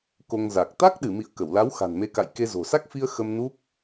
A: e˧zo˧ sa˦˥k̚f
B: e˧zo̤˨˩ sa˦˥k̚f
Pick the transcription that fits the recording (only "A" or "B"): B